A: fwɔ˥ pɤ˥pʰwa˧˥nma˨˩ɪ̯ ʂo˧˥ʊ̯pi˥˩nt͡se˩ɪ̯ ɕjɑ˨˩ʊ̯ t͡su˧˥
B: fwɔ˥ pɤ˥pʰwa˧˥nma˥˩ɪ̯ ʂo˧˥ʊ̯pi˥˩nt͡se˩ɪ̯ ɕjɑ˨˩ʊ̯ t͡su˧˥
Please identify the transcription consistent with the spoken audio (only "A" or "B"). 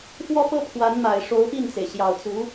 A